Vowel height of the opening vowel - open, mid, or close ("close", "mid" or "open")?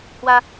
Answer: open